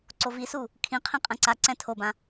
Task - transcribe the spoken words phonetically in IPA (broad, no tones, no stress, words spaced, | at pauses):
ǀovisu | kʰĩqʰĩ qʼɛ̃ǀaǀɛ̃ tʰobã